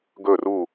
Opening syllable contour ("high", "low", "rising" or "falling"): falling